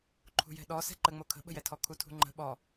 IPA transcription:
ǃʰṳjɛ̤ɗɔ sɛ̤ǃəŋ͡mo kʰə̤ɓə̤jɛtʰɔ kʰutʰṳŋ͡ǃə̤ ɓɔ

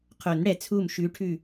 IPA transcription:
qʰo˨˩˦n ɽɛ˨˩˦ t͡sʰu˧˩m ʃʉ˧˥ʈʰʉ˥˨

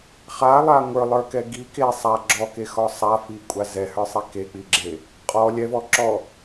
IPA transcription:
χalˠa ŋʷə˞lˠə˞kɛ ɡi ke sˤa ɡ͡ǁɔkexɔ sˤafikʷʼa zɛhə˞sˤi kek͡piɡ͡ǁe | qʼɔ lʲɛvɔ ǁɔ

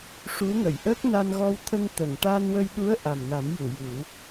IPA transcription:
ʂu˧˥ŋə˨˩˨j ʔəː˦˥k̚na˧nɣɔ˧wt̪ʰə˧ŋ t̪ə˨˩˨ŋ ʈa˧nwə˧jɗu˧˥ə̯ ʔa˨˩mna˨˩˦mju˨˩˨ju˨˩˦

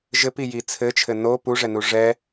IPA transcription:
ʒɘpiji t͡sʰɘt͡ʃʰɘ no puʐɛnu ʐɛ

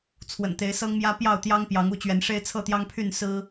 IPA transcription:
t͡sʰwə̰˨˩nt̪e˨˦ɪ̯sɤ˦ŋmjä˦ pjɑ˥˨ʊ̯t̪jɑ˦ŋ pjɑ˨˦ŋu˥˨t͡ɕɥɛ˨˦nʂe˦ɪ̯ t͡sʰɤ˥˨t̪jɑ˦ŋpʰy˥˨n sɹ̩˦

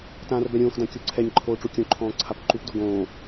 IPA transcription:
tãːrbɛɾʲõːxdã kʲoǀʰɛɲǃʰoː ʈ͡ʂukʲõǃʰɔ̃ː ǀʰapǃupdo ɡõː

